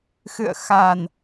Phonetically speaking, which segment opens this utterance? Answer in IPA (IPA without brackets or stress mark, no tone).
x